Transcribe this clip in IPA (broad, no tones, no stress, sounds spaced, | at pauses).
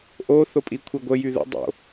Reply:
ʔ o θ o pʼ i kʷʰ e ɡʷ ə j y ð ə̰ dˤ o̰